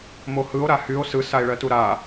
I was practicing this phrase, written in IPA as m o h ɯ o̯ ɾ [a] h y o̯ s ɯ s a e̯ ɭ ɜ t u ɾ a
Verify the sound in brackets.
correct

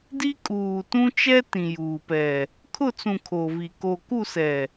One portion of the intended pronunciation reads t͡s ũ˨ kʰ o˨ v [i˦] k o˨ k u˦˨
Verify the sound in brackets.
incorrect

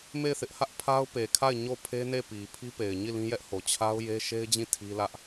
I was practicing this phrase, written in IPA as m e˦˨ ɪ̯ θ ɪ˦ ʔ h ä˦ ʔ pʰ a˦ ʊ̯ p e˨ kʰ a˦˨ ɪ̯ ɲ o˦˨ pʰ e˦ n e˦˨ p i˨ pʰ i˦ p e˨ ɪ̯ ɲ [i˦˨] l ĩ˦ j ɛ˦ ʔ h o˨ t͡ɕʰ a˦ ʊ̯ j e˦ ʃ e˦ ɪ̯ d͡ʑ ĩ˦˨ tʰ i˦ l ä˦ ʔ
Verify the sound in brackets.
correct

